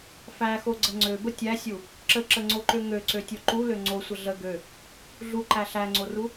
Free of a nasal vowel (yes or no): yes